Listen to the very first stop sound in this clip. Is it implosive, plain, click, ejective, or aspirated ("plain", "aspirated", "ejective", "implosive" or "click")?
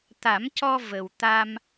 plain